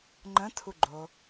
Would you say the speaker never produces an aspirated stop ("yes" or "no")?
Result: no